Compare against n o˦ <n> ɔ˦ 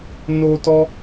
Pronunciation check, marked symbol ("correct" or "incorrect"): incorrect